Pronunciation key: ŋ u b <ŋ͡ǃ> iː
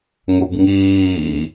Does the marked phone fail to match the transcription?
yes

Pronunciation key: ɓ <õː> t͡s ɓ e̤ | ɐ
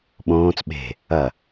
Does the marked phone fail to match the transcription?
no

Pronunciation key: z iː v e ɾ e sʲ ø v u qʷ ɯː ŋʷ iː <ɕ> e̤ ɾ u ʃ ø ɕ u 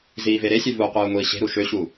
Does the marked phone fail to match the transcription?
no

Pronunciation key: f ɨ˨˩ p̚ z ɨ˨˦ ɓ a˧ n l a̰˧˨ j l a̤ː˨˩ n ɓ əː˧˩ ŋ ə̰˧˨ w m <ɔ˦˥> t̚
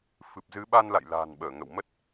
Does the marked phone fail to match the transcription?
yes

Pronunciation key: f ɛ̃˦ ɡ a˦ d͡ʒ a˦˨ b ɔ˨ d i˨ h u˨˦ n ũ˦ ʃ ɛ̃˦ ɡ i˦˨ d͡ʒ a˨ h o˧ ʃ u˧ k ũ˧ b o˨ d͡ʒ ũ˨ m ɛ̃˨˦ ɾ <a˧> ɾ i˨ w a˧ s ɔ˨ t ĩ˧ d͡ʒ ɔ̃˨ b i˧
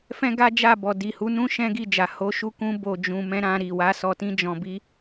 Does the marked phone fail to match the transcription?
yes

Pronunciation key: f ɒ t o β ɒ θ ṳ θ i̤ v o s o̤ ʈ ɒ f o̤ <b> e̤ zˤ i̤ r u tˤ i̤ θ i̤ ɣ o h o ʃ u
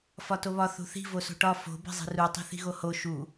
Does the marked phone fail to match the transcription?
no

